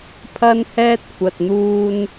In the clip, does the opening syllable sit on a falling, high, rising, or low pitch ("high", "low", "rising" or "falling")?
high